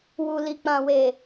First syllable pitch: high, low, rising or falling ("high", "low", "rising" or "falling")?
low